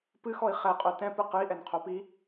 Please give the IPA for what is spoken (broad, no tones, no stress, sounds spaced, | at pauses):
p ɨ x ɔ i̯ χ ɛ qʼ o t ɛ̃ p ɨ q ɨ i̯ ʔ ɛ n qʰ o p i